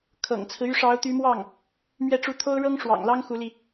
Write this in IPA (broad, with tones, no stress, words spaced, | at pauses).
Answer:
kʰɤ̰˨˩ŋt͡sʰɹ̩˦ y˧˥ʂɑ˧˥ʊ̯t̪y˧˥mwɑ˥˩ŋ | mɥɛ˥˧ʈ͡ʂu˥˩ t̪ʰo˥ʊ̯ɻɤ˥ŋʂwɑ̰˨˩ŋlɑ˥ŋ xu˧˥li˧